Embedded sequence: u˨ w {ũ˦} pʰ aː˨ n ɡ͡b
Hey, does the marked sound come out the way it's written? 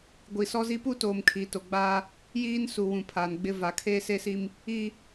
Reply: no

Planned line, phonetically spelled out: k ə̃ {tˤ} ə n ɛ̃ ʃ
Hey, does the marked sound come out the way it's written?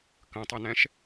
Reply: yes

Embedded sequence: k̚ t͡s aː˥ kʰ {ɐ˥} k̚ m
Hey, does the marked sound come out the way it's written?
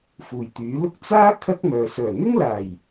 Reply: yes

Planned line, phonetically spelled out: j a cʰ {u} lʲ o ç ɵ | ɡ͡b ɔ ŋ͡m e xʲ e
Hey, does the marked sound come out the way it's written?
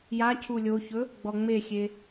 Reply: yes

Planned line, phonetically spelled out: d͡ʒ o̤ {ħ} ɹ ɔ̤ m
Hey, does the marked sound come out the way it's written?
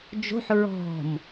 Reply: yes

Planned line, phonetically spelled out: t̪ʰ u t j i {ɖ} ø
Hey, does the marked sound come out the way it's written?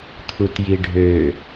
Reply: no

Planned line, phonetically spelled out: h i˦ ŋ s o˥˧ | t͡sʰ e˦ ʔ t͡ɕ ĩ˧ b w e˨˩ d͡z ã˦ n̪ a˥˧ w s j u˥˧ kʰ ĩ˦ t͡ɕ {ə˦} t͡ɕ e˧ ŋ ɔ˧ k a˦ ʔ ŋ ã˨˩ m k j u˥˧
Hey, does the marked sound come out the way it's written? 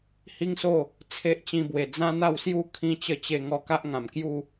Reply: yes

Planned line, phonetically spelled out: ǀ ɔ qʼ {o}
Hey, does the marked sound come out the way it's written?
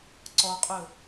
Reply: no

